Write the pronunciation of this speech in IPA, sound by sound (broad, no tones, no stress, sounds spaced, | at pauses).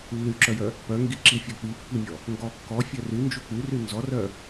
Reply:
lː y ǁ œ j œ | p œ ŋ ɡ i ǁ i fʲ ɔ k͡p i pː i mʲ ɔ | ŋ ɡ ɔ kː ɔ fʲ œ r y n d͡ʒ u k͡p y r y n z ɔ r œ